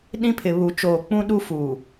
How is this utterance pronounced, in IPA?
ɗĩ˦pʰɪ˨ βu˨ t͡ʃoː˨k͡pũ˦ɗu˦ fuː˨

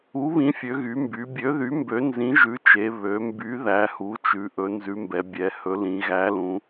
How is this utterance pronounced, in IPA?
u˨˥βĩ˨˥fʲø˩˧ɣy˩˧ mby˩˧bʲø˨˥ðy˨˥ mbø˨˥nzĩ˨˥ʒʉ˨˥t͡ʃe˩˧ βø˩˧mby˨˥ ðæ˨˥hu˨˥t͡ʃʉ˩˧ ʔɵ˨˥nzʉ˨˥mbɛ˩˧ bʲɛ˩˧hɵ˨˥lĩ˩˧ ɣæ˨˥lũ˩˧

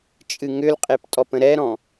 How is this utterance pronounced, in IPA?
t͡ʃʼɨŋʏlqʼep tʼɔpə̃ɾɛɾɔ̃

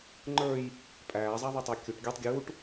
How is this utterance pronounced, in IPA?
ŋ͡ǃə˞j | pʼæːzˤæ ðˤutˤækʲuʈ ɡʲə˞tˤ ɡʲuːʈ

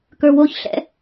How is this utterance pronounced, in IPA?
kə˞woç ɬɛ̰

